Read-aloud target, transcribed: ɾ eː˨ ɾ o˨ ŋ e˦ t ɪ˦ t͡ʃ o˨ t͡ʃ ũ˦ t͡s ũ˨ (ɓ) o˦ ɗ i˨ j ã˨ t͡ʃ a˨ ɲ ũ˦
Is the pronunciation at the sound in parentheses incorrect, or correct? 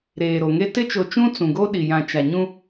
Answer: incorrect: ɡ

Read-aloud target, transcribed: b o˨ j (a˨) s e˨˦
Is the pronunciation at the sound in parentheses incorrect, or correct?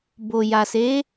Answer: correct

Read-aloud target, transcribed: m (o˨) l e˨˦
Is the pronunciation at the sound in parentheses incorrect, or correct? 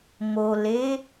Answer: correct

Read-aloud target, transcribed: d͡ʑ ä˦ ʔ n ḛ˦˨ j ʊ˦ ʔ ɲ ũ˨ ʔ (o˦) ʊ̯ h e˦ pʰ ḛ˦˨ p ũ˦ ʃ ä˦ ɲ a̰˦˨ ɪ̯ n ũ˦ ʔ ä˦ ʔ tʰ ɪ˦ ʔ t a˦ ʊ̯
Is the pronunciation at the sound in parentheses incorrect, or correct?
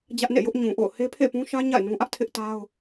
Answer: incorrect: o̰˦˨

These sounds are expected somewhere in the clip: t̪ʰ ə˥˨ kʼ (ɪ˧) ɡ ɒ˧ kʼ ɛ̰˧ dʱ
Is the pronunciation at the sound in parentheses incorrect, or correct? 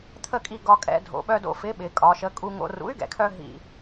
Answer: incorrect: i˧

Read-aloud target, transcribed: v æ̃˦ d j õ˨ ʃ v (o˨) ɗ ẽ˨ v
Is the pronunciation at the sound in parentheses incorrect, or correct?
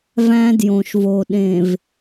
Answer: correct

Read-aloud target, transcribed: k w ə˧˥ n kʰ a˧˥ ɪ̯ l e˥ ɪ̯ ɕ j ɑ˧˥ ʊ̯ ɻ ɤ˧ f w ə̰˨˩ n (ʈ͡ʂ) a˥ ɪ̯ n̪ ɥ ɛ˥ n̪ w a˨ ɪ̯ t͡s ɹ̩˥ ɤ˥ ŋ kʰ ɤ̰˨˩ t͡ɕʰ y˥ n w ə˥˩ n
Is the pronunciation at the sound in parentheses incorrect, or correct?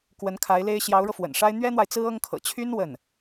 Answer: incorrect: ʂ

